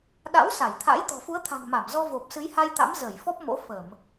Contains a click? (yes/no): no